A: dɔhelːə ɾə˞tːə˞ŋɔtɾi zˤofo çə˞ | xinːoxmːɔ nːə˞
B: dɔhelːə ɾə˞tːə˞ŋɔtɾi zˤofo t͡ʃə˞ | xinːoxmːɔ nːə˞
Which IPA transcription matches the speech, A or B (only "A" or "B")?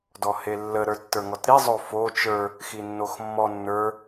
B